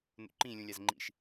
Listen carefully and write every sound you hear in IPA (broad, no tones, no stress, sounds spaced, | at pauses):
n ṵ ǃ ĩ lʲ ũ lʲ a z ŋ͡ǃ ḭ ʃ